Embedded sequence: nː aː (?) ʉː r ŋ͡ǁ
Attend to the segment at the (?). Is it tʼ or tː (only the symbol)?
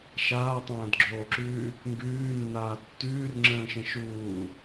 tː